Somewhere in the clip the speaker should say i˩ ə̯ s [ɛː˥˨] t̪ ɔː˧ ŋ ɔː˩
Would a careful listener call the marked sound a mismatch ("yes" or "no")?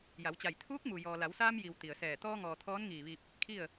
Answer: yes